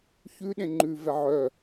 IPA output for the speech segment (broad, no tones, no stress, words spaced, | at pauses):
çʉɗẽ ŋ͡ǃʉvɛ ʕœ